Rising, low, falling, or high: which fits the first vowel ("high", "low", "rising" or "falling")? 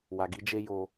low